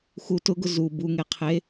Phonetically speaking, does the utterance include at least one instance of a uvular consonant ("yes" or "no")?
yes